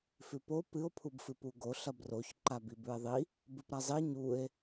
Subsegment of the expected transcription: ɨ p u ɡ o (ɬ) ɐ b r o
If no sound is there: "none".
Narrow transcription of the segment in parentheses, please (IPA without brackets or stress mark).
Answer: ɬ